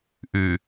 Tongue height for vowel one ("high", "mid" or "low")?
high